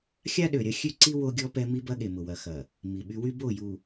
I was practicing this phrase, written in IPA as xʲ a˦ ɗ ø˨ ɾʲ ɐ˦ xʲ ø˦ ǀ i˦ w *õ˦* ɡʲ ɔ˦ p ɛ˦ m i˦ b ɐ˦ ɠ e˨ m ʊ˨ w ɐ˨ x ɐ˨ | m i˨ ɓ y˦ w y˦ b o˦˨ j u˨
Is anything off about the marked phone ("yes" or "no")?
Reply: yes